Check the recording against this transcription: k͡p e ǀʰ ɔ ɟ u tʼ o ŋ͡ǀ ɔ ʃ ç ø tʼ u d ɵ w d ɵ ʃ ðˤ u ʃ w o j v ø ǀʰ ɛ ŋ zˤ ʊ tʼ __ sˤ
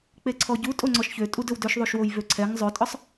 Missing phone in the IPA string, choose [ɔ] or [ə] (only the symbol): ɔ